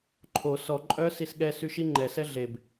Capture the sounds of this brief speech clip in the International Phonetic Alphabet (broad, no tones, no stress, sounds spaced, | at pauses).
ǃʰ o s ɔ ǃʼ œ s i s ɠ ɛ s y ʃ i ŋ͡ǃ ɛ s ɛ ɮ e b